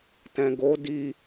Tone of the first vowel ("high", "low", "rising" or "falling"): low